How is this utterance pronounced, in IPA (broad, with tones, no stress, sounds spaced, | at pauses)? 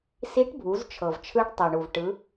s i˧˥ ʈ bʱ u˩˧ z t͡ʃʰ ɤ˩ v t͡ʃʰ ɯ˧˥ ɖ tˤ ɤ˩ ɳ u˩ v ʈ ɯ˩˧